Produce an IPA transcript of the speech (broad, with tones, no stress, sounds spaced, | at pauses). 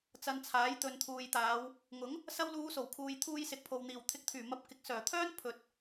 t͡s ɐ˧ n t͡sʰ aː˨˥ j t̪ ɵ˨ n t̪ʰ uː˨ j t̪ aː˨˧ w | ŋ ʊ˨˥ ŋ | s ɐ˧ w l uː˨˧ s o˨˩ w kʰ uː˨ j t̪ʰ uː˧ j s ɪ˨ k̚ pʰ o˨ w n̪ iː˨˩ w t̪ʰ ɪ˨˥ k̚ t̪ʰ yː˨˩ m ɐ˨˥ p̚ k ɪ˨ k̚ s œː˨˩ t̪ʰ œː˥ n pʰ ɵ˨ t̚